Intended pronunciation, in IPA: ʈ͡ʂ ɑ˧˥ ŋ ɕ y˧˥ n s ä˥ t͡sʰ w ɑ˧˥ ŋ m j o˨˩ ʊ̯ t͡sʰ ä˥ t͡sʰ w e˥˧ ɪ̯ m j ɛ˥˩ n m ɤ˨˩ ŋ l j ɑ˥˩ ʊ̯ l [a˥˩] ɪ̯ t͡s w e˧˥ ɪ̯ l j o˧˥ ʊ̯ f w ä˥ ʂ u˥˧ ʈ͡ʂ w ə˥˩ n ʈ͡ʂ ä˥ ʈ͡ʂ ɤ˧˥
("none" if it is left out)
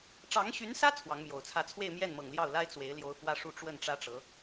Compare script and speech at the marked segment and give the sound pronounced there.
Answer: a˥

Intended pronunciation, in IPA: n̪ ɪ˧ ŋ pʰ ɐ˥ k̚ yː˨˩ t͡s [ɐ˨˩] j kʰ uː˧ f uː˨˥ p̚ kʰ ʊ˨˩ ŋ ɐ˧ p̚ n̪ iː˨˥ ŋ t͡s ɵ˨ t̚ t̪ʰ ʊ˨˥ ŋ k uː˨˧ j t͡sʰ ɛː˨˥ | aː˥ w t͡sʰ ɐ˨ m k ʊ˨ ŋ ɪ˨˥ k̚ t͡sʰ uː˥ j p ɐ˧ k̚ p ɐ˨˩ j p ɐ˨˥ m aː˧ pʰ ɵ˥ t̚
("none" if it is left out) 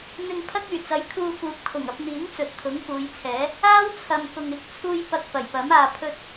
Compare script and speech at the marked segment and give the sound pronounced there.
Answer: ɐ˨˥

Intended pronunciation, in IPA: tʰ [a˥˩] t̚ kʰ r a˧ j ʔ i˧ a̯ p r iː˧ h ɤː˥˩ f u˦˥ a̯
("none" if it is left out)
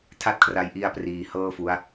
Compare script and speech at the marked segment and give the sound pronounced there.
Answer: a˥˩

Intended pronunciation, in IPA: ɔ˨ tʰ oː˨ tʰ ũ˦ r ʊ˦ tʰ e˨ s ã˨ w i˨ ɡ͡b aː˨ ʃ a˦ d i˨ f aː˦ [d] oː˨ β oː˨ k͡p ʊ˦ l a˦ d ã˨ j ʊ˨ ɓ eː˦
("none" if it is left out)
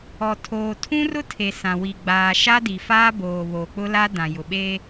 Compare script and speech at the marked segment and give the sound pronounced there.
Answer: b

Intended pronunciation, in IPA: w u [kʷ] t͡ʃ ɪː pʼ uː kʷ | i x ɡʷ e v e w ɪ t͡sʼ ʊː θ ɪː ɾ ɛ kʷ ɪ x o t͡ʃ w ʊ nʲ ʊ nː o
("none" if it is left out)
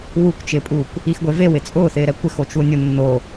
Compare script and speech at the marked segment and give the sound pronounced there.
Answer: kʷ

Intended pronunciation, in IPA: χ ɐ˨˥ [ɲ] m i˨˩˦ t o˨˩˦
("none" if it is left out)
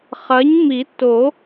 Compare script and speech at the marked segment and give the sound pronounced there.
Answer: ɲ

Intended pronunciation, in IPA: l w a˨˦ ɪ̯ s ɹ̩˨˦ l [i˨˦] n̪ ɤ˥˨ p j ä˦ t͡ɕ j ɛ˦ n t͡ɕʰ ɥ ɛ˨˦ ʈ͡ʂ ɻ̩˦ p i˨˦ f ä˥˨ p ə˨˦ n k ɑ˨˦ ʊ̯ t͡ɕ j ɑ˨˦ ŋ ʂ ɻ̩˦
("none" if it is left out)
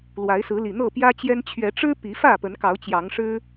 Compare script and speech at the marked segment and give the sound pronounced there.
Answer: i˨˩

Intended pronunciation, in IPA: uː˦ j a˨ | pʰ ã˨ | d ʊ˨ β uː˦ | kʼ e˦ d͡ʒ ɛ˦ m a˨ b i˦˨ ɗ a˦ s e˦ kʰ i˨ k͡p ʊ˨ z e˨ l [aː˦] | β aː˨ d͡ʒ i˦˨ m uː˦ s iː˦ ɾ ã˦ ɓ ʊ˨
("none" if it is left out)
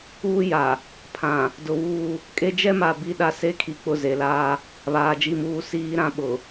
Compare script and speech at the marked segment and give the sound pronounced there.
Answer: aː˦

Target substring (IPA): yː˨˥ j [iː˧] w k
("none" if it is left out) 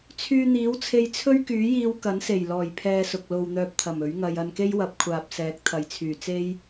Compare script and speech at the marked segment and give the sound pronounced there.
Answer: iː˧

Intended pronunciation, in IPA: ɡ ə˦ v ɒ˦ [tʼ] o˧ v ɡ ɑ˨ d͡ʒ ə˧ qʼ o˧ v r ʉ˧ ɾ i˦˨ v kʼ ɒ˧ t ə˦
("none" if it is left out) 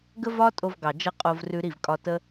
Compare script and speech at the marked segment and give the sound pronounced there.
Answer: tʼ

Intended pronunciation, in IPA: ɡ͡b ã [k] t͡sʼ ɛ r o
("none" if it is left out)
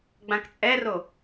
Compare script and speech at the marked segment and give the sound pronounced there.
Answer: k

